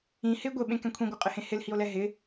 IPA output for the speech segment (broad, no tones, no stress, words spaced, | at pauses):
ĩ hɪ ɡʷeɓẽkɛ̃ kʷʰĩɡʷɛqʼɪhẽ hɪlhio̯lɛ ɦɪ